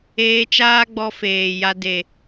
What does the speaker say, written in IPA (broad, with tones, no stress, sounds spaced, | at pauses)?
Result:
eː˧ t͡ʃ aː˦ ɡ͡b ɔ˧ f eː˨ j a˧ d e˨